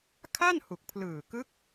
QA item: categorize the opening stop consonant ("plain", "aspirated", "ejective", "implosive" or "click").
aspirated